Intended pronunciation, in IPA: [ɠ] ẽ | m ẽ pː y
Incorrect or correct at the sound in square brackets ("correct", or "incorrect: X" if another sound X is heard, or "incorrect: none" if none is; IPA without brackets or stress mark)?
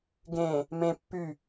incorrect: ɡ